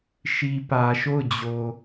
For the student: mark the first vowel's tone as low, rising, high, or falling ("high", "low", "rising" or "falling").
low